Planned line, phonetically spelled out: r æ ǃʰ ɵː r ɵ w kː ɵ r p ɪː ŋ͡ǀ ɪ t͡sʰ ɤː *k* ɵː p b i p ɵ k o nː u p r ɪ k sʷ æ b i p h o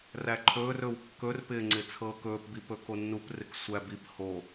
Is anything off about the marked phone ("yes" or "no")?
no